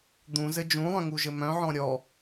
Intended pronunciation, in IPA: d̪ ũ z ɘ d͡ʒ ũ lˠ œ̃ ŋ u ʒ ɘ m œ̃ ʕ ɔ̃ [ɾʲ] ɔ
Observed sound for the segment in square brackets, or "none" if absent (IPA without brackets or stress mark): ɾʲ